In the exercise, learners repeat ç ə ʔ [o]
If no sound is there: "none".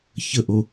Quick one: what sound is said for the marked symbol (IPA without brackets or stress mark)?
o